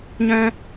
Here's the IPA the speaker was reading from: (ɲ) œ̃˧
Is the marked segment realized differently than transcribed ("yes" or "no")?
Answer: no